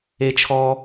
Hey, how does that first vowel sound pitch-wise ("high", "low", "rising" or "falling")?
high